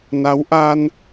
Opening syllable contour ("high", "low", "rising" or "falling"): rising